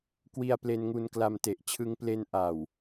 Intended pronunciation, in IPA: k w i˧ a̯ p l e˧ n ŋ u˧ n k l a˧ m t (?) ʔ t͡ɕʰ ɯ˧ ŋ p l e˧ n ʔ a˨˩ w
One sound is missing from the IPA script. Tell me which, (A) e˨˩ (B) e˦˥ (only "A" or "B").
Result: A